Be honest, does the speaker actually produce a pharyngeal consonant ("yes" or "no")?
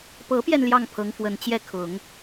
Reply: no